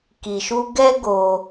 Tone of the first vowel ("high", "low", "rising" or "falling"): low